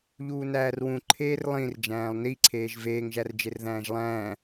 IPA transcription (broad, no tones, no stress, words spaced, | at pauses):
ʎuːnæːrwũ ǃʰeːrlˠĩr d͡ʒæ̃ːlˠniǀʰeːʒ veːŋʒærd͡ʒer ðæ̃ːʒlˠæ̃ː